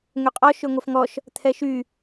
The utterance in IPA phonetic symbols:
ŋ ø qʼ ɔ ʃ ø ŋʷ ɛ f ŋ ɔ ʃ | t̪ʰ ɛ ʃ y

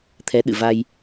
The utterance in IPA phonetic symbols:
t̪ʰ ɛ˨˦ ɗ ɨ̰˧˨ v a˧ j

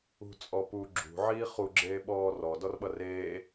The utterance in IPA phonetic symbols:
ṳ t͡sʼ ɔ p u ɡ͡ǁ ṳ ʕ iː χ u ɡ͡ǁ eː ɓ ɔː r ɔ d ɔ r ɓ ʌ r eː

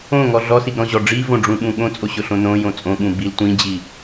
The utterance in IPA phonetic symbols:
õ ŋ ɔ ɮ ɔ s i ɡ ɾ ɔ̃ ʑ ɔ ɖ͡ʐ i v õ ɖ͡ʐ ũ ɓ ũ ɠ õ t͡sʼ o ɕ ʊ ɬ õ n õ j õ t͡sʼ õ ɠ ũ b i l tʷ ĩ d͡ʑ i

